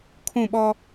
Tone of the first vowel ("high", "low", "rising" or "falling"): falling